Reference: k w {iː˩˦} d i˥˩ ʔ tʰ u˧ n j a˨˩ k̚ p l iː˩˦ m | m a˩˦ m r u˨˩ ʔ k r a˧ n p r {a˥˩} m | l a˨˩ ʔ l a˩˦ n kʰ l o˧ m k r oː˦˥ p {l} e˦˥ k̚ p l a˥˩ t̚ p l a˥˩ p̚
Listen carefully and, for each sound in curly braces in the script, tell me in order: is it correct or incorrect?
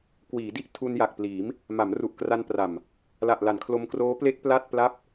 correct, incorrect: a˨˩, correct

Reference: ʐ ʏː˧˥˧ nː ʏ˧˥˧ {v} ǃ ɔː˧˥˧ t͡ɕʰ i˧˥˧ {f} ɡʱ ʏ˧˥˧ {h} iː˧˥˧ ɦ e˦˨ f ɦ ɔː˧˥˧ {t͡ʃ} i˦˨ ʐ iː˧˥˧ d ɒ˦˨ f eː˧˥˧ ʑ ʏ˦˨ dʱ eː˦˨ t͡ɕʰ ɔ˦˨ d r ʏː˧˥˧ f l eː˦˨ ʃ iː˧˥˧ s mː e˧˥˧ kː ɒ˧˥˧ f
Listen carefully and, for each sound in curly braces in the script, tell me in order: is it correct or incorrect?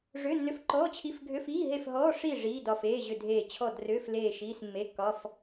incorrect: f, correct, incorrect: f, incorrect: ʂ

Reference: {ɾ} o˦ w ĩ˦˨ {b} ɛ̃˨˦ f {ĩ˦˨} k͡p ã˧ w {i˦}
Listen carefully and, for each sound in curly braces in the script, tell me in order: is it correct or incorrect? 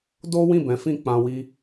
incorrect: d, correct, correct, correct

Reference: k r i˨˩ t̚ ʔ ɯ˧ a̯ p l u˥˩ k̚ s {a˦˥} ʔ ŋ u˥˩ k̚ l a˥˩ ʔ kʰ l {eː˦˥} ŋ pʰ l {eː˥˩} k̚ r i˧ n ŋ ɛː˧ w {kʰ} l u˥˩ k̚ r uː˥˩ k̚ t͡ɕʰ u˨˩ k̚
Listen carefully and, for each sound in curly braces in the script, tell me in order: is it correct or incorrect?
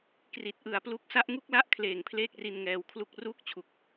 correct, incorrect: eː˨˩, correct, correct

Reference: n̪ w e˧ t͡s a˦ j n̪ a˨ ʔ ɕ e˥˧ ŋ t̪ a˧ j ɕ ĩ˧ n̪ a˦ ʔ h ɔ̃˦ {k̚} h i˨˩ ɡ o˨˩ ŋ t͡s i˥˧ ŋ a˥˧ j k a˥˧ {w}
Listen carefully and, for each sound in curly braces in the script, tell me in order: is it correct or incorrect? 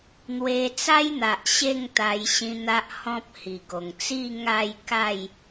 incorrect: p̚, incorrect: j

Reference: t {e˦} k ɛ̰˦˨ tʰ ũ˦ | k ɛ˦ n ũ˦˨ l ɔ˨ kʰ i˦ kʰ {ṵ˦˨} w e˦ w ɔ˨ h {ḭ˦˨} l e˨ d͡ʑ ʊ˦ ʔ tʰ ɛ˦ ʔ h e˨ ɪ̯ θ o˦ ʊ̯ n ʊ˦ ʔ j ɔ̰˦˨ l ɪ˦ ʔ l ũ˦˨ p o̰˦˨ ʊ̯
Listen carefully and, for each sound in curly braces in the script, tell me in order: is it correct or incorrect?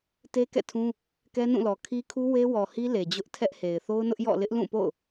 correct, incorrect: u˦, incorrect: i˦

